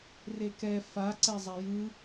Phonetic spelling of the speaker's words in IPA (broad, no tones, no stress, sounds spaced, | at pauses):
r e k ɛ f a ǀ ɛ zˤ a j ɯ